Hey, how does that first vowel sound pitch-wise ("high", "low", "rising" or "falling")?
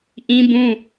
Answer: high